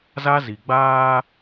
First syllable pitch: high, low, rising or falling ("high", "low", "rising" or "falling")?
high